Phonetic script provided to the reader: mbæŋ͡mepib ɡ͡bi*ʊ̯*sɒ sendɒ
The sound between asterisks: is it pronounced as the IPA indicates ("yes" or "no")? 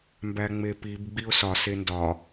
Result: yes